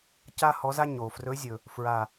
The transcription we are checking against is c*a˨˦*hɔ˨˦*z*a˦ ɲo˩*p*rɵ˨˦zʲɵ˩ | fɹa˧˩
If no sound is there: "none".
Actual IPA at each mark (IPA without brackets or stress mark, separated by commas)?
a˦, z, f